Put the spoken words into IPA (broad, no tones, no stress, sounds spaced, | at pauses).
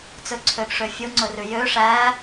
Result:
t͡s ɵ ǀʰ ø ɡ ʂ ø fʲ o ŋ͡ǀ ɵ r ʉ j ø ʂ æ